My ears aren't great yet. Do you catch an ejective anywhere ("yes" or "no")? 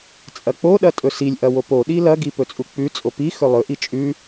yes